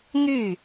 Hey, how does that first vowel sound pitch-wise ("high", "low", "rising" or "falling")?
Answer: falling